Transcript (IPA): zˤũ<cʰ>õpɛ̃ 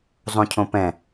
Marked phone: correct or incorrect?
correct